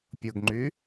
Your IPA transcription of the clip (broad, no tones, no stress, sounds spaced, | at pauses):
pʲ ʊ ɡ ŋ͡ǃ y